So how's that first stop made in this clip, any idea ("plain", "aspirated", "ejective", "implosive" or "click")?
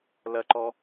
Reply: click